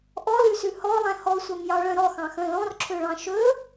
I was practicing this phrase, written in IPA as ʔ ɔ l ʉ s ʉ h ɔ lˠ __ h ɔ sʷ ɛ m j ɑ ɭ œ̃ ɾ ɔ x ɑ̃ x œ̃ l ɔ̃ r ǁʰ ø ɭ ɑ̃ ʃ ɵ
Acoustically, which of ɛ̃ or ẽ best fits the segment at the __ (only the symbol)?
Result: ɛ̃